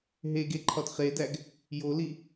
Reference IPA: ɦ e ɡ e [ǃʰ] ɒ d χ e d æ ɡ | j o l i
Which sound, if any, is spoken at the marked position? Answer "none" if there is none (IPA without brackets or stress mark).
ǃʰ